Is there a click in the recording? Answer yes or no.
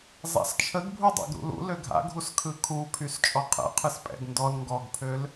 no